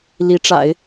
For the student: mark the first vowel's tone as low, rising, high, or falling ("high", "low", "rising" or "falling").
rising